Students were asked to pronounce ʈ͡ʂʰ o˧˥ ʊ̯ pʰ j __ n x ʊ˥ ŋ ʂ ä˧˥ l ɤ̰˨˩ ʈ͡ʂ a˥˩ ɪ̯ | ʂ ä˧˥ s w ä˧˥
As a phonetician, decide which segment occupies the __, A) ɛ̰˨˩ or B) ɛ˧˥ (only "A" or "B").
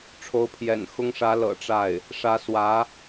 A